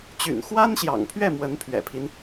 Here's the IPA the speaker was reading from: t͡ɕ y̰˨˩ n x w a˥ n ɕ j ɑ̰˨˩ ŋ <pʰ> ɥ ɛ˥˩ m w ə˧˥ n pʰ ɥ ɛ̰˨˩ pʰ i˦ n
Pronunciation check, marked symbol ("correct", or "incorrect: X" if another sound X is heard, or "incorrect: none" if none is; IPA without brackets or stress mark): correct